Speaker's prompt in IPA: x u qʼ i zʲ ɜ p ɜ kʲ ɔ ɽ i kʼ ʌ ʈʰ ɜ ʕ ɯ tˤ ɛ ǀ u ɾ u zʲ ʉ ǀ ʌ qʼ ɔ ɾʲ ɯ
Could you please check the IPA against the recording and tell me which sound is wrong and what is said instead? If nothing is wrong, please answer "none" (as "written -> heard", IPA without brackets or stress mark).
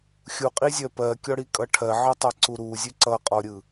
x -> xʲ